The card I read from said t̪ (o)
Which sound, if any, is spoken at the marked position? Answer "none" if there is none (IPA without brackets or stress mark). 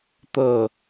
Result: ɤ